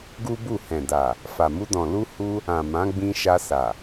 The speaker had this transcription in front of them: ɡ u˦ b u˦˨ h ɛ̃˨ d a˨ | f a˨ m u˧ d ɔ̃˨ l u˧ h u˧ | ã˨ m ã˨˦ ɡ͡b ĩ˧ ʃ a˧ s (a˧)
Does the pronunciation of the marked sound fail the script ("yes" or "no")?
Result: yes